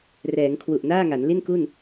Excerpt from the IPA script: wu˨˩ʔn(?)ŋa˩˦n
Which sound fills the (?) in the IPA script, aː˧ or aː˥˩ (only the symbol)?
aː˥˩